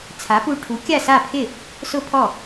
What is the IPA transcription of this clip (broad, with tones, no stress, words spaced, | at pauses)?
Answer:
t͡sʰa˩˥pu˧ ʈʰu˩˥ kʲa˥˩sa˥˩pʰɪ˥˩ | sʊ˥pʰɔ˥˩